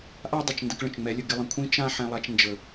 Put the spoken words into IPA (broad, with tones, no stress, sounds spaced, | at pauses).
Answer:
ʔ a˦ dˤ ɪ˨ t͡ʃ n d ə˧ k ɭ ə̃˨ t͡ʃ ŋ͡m ɛ˨˦ lʲ ə˨ ɡ ɪ˧ lˠ ə̃˨ kʷʰ ĩ˦ t͡ʃ ã˦ ħ ɛ̃˧ lˠ a˧ t͡ʃ n d͡ʒ ə˨